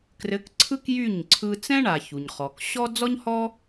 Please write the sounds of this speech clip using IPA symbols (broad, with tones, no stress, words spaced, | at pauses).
krɘ˨˦kǀʰɯ˦k jy˦˨ɲ ǀʰɯ˧ t͡sɛ̃˦ɳa˨ çu˨ɲχɔ˨k ɕɔ˦ d͡zɔ˦ɲhɔ˦